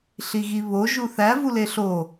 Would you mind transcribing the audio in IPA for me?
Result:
ɬ i ɣ i β o ʒ u θ æ v u l e ɬ o

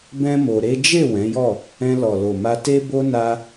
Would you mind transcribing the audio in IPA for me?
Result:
b ɛ̃˦ m o˧ ɾ e˦ d͡ʒ e˦˨ w ɛ̃˨˦ j ɔ˦˨ | ɛ̃˧ l ɔ˨ l o˨ m a˧ t e˧ b o˧ n a˦

